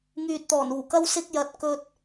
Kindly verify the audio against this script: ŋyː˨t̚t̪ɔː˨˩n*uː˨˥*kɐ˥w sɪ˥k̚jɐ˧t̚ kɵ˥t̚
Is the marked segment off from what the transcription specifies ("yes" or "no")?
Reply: yes